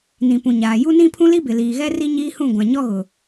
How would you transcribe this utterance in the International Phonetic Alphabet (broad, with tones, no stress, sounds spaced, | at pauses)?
n ĩ˨ p ũ˨ ɲ aː˨ j u˦ n ĩ˦ pʰ ũ˦ l i˦ b ɪ˨ l iː˨ ɣ ɛ˦ r i˦ ɲ iː˦ h ũ˦˨ ɡʷ ã˨ ɲ ɔ˦ ɣ ʊ˨